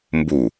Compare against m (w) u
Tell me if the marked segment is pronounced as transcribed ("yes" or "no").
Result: no